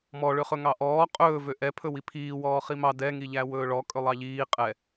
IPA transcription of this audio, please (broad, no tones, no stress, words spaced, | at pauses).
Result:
mɔɭøχɵ ŋɑʔɔː qʼɵː vøʔɛpʰɵ wipʰiːwɔː χimɑ dɛŋiʎæ wɵːɭɔ kʼɵlˠɑʎiː qʼɛ